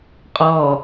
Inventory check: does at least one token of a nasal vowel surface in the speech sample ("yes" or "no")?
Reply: no